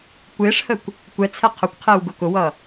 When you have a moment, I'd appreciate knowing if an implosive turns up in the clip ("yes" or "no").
no